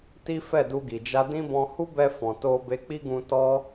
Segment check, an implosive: absent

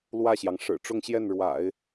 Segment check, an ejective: absent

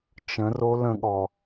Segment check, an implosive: present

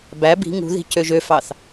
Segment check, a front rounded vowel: present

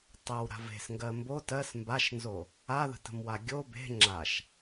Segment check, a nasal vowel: absent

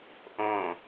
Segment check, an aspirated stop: absent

